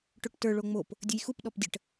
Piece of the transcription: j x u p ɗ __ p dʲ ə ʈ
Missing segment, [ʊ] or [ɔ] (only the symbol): ɔ